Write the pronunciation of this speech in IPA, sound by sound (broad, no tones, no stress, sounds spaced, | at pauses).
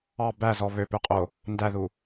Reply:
ɑ b æ z ɔ β ø p ø qʼ o | n d æ ð u